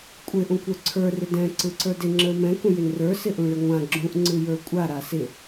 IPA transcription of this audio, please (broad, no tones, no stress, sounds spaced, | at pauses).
kʷʼ ɪ ʔ ũ kʷ ə˞ ǀʰ ə˞ r ɪ d ɛ̃ ǀ ɯ ǀ ə˞ d ɪ ŋ͡ǁ ə˞ m ɛ̃ k ũ j ɪ n r ə˞ s ɪ ʔ ũ ɭ ɪ ŋʷ ã ɡ͡ǁ ũ ʔ ŋ͡ǀ ɯ j ə˞ kʷʼ a ɾ a s ɪ